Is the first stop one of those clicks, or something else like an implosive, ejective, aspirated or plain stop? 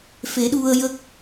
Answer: implosive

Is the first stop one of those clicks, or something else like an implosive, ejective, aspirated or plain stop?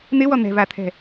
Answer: aspirated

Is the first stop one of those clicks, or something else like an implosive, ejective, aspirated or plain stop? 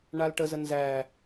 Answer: plain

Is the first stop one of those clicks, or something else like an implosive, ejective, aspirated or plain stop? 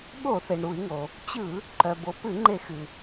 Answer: implosive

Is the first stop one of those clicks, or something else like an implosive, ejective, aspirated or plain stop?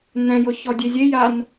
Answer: plain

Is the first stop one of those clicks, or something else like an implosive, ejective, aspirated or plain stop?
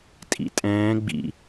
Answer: ejective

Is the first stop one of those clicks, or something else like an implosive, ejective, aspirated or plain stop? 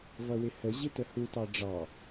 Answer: plain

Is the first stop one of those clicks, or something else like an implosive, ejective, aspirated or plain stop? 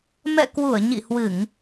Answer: plain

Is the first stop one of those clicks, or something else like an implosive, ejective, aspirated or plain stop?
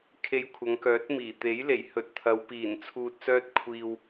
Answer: aspirated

